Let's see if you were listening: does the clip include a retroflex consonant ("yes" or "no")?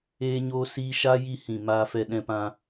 no